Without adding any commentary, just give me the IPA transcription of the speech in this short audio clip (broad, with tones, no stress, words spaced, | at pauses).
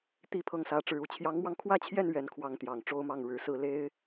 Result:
t̪i˥pʰɤ˥˩ŋ sä˧˥ʈ͡ʂɻ̩˧˥u˨˩ t͡ɕʰjɑ˧˥ŋmwɑ˧ŋkʰwä˥t͡ɕʰjɛ˥˧n ɥɛ˥˩nkʰwɑ˥ŋ t̪jɑ˨˩ŋ ʈ͡ʂo˥ʊ̯mɑ˥˩ŋ ɻɻ̩˧˥sɹ̩˥˩ le˥ɪ̯